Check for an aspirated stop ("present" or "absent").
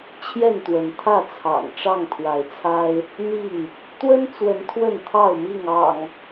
present